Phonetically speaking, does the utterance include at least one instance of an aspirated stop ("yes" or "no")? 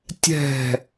no